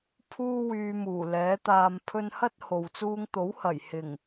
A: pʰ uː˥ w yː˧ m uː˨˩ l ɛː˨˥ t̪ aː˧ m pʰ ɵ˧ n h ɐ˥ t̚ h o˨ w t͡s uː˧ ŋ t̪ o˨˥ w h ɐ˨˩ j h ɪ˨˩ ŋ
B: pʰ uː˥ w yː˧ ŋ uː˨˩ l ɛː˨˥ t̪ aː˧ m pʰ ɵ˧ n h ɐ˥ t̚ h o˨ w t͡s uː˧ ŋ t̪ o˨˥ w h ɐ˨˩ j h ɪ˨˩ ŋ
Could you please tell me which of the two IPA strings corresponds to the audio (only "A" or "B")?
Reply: A